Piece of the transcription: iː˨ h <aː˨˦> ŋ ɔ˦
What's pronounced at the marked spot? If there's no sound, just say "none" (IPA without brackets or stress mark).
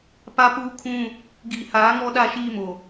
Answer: aː˨˦